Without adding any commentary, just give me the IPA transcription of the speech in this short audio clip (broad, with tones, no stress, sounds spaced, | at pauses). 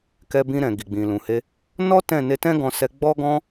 k ɛ˧ b ĩ˧ ɾ ɛ̃˨ ɡ i˨ ɡ͡b ĩ˨ l ũ˨ h e˧ | n ɔ˦ t ɛ̃˦˨ n e˧ t ɛ̃˦ ɡ ɔ̃˧ s ɛ˧ ɡ͡b ɔ˦ ɡ ɔ̃˦